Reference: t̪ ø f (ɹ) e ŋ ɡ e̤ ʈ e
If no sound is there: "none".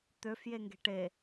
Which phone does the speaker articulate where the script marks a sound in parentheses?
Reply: j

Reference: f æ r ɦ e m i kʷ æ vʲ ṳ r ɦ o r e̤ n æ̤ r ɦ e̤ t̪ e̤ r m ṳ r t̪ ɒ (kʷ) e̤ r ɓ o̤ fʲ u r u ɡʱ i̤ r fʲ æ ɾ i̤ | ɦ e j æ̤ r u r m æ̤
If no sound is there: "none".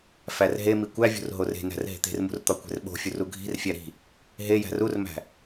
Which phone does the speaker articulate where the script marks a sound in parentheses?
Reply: kʷ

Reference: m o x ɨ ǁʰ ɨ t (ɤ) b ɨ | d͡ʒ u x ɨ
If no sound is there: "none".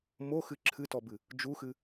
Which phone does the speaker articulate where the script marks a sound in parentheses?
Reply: ɔ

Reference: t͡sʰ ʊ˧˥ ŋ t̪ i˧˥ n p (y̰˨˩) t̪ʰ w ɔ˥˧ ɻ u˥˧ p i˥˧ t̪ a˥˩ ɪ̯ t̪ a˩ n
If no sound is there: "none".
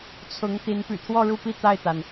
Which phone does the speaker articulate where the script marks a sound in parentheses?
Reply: y̰˨˩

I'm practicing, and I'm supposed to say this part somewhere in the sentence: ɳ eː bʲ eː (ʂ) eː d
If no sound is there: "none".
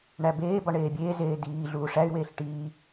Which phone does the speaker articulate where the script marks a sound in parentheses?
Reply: z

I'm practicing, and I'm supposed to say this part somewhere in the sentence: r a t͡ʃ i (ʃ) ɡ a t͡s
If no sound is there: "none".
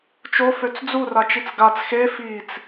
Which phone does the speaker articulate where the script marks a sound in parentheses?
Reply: t͡s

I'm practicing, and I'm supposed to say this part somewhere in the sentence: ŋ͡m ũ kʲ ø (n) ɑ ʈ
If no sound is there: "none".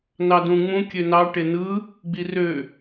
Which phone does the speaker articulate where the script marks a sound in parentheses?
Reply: n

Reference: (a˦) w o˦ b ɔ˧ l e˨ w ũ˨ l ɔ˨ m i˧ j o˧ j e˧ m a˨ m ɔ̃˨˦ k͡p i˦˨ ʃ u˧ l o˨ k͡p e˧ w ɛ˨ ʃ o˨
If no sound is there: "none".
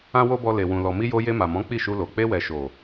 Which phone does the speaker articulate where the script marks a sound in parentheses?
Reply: ã˦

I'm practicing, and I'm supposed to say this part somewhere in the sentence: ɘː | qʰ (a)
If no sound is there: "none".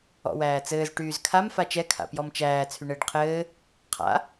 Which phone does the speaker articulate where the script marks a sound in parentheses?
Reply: a̰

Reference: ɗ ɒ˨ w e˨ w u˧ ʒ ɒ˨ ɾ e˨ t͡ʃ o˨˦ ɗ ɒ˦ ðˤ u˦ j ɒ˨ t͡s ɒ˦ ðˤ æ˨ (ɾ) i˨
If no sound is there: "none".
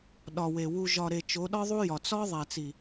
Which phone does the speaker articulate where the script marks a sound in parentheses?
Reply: t͡s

